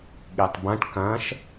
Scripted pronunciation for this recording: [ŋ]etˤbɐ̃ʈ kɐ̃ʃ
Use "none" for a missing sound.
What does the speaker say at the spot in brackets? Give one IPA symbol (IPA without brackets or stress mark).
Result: ɠ